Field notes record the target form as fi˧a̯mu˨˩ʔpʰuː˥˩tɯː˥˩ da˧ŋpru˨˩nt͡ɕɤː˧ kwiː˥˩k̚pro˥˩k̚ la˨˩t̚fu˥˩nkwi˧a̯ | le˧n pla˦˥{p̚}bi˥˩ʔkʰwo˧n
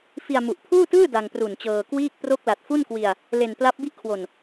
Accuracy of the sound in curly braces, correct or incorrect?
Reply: correct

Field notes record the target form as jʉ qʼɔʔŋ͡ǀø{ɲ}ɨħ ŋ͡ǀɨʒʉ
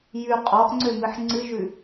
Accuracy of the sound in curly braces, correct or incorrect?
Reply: incorrect: m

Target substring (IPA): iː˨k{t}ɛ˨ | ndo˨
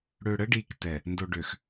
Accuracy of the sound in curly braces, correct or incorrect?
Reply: correct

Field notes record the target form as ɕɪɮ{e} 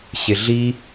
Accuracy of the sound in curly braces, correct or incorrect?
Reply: incorrect: i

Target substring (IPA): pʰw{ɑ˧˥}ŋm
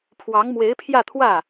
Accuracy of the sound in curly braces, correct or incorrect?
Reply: correct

